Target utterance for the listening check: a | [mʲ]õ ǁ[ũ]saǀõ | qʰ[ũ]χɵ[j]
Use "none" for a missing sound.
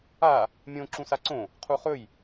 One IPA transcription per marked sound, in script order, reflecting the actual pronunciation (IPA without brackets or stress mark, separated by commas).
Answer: mʲ, ũ, u, j